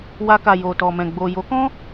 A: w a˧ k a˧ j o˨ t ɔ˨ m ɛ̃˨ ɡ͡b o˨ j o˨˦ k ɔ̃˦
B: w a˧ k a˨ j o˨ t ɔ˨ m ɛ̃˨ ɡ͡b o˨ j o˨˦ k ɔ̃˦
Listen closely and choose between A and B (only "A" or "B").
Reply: B